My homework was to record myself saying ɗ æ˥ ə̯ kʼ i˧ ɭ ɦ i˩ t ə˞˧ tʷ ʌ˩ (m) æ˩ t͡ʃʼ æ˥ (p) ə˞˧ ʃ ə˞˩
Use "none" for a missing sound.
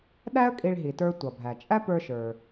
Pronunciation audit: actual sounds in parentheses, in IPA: bʱ, p

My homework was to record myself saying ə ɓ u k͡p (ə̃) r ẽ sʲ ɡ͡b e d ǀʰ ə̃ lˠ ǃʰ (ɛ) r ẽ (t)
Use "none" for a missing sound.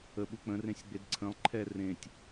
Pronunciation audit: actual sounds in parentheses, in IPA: ə̃, ɛ, tʲ

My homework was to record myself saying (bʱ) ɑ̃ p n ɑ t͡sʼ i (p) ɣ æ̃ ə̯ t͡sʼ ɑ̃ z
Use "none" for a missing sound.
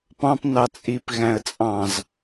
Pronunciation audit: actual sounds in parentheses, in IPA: p, p

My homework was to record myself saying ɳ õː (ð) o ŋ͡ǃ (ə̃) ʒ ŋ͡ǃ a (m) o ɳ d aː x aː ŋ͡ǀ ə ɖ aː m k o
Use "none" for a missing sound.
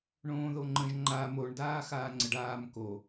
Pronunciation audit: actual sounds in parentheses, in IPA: ð, ə̃, m

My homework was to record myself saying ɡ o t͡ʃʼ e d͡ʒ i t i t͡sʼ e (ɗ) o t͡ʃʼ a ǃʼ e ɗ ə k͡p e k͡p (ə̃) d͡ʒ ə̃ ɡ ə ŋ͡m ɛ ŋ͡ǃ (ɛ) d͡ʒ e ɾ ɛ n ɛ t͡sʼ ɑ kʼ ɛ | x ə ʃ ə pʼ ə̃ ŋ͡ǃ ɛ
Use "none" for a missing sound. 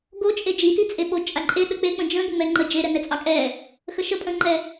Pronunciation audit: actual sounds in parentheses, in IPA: ɓ, ə̃, ə

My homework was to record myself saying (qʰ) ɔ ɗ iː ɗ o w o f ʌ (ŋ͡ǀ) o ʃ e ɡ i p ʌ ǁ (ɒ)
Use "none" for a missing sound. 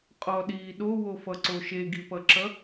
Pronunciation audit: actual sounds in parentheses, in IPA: qʼ, ǀ, ʌ

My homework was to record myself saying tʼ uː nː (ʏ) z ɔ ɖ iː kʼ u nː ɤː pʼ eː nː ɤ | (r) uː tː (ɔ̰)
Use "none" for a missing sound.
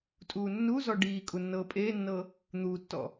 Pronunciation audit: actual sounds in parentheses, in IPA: u, n̪, ɔ̰

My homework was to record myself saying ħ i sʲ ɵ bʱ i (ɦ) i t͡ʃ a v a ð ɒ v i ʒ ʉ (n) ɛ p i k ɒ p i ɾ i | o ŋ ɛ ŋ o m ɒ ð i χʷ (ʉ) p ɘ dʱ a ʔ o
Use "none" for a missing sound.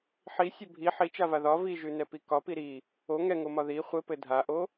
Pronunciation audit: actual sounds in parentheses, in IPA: ħ, n, ɘ

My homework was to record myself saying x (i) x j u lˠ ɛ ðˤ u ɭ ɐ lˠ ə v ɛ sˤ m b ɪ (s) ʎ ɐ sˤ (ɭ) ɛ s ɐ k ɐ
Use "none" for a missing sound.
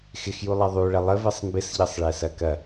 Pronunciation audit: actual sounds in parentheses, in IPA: ɪ, s, ɭ

